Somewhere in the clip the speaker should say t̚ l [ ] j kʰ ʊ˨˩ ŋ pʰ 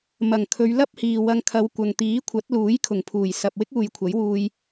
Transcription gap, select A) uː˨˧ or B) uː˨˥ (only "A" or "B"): B